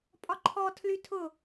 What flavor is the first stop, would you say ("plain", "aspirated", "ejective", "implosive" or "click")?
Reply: ejective